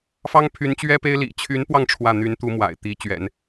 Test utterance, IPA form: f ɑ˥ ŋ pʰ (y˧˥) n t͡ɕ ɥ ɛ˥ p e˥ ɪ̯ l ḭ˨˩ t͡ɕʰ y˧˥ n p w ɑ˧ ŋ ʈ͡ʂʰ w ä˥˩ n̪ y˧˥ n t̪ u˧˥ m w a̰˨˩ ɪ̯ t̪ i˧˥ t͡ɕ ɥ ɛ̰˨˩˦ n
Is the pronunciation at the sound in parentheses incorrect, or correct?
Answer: correct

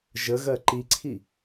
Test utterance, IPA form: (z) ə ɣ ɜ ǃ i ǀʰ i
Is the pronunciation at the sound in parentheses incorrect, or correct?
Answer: incorrect: ʒ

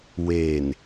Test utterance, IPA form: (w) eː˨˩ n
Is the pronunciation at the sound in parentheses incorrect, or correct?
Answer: correct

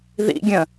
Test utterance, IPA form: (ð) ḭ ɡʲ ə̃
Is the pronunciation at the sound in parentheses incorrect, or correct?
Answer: correct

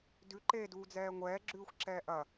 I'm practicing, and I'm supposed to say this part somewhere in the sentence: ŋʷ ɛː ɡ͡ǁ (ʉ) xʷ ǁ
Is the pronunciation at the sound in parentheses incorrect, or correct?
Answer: incorrect: ʉː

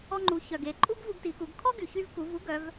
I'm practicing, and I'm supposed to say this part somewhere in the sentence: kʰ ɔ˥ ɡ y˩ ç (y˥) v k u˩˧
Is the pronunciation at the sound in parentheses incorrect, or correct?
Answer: incorrect: y˧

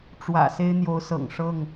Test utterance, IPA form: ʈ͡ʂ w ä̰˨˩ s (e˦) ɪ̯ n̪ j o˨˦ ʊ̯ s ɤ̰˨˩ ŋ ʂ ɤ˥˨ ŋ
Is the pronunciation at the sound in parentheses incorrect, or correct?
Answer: correct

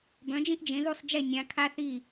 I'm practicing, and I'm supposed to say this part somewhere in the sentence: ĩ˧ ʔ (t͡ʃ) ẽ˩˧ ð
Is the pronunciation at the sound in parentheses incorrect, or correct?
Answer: incorrect: d͡ʒ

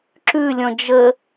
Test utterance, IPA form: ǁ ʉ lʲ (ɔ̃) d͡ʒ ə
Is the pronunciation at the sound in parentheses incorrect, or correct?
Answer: correct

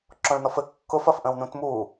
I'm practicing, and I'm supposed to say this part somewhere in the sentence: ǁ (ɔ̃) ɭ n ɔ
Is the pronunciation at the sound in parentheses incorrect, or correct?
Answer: correct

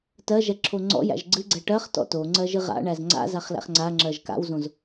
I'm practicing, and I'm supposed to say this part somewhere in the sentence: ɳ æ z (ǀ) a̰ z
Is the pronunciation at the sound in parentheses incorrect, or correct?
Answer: incorrect: ŋ͡ǀ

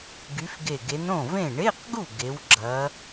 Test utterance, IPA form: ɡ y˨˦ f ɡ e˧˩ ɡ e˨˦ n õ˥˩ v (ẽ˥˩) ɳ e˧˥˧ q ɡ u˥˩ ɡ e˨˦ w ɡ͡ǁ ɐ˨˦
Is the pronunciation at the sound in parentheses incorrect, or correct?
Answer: correct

